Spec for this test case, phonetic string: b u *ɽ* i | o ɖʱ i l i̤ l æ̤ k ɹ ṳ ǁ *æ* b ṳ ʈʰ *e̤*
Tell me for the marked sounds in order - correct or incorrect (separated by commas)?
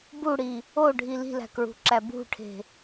correct, correct, correct